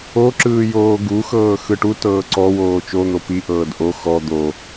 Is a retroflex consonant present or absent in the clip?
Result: present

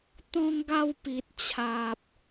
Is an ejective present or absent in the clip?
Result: absent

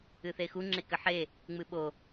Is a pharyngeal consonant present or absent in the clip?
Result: present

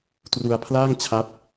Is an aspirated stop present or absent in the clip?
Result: present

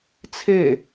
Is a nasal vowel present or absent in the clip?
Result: absent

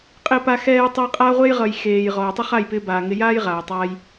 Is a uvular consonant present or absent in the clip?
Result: present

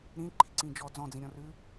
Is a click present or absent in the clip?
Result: present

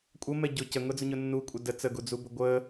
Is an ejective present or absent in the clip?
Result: present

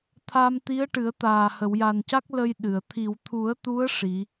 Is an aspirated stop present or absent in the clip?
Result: present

